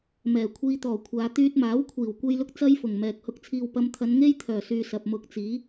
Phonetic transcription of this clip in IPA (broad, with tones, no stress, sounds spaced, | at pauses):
m ɛː˨˩ kʷʰ iː˧ t̪ ɔː˨˩ kʷʰ aː˨˧ t̪ yː˧ t̚ m aː˨˥ w kʷʰ iː˨˩ w kʷ e˥ j l ʊ˥ k̚ t͡s ɐ˥ j f ʊ˨˩ ŋ m ɛː˨ k̚ h ʊ˧ k̚ t͡sʰ iː˨ w p ɐ˨˧ m t̪ʰ ɐ˨˧ n ŋ e˥ j t̪ʰ œː˨˩ s yː˨ s ɐ˨ p̚ m ʊ˧ k̚ t͡s iː˨˥